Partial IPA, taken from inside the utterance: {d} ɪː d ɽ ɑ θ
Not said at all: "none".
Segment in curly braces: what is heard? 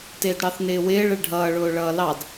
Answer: t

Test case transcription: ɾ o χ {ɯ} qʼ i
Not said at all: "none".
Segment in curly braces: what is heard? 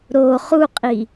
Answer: u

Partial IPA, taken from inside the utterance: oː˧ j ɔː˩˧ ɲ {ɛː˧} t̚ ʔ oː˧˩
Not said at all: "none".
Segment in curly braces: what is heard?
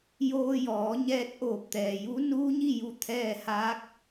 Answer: ɛː˧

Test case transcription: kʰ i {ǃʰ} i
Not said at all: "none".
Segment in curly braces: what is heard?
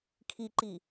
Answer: ǃ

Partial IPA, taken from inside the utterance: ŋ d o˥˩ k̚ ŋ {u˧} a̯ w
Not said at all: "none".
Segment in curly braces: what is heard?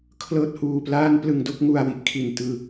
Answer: u˧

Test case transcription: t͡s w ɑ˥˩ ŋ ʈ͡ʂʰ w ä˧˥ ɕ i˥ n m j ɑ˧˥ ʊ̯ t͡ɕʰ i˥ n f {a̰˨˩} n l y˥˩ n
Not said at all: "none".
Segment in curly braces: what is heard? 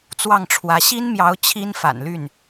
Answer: a̰˨˩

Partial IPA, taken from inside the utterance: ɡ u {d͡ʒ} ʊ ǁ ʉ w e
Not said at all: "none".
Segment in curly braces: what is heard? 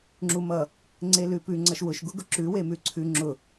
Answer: ɡ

